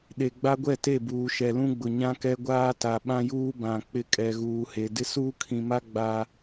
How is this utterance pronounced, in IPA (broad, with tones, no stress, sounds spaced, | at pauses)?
ɗ e˨ ɡ͡b a˦ ɡʷ ɛ˦˨ t e˦˨ b uː˨ ʃ ɛ˨ l ũ˦ ɡ͡b ʊ˨ ɲ ã˦ k ɛ˦ ɡʷ aː˦ t a˨ ɓ ã˦ j uː˦ b ã˨ k͡p ɪ˦ kʼ ɛ˨ ɣ uː˨ h e˨ d ɪ˦ s uː˦ kʰ ĩ˨ m a˦ ɡ͡b a˦